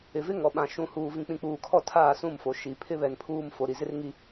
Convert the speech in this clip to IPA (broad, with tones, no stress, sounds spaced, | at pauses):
ɪ˨ v ɪ˦ ŋ ɔ˨ ɓ ã˨ ʃ ũ˨ h uː˨ v ĩ˨ k͡p ĩ˨ k͡p uː˨ kʰ ɔ˦˨ tʰ aː˦˨ s ũ˦˨ m f o˨ ʃ i˨ pʰ ɪ˦ β ɛ˨ n pʰ uː˦˨ m f o˨ ɾ i˨ z ɪ˦ r ŋ i˦